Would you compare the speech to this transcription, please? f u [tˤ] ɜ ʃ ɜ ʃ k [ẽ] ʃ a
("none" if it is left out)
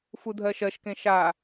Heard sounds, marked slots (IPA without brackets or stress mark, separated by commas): dʱ, ẽ